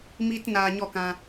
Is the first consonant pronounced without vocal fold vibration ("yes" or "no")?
no